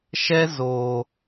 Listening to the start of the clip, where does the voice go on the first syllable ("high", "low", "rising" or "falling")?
high